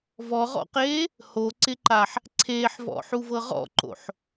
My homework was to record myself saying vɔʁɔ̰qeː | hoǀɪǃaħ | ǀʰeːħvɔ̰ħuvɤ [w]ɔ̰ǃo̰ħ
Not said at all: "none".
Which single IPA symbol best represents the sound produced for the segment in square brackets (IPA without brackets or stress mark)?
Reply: ʁ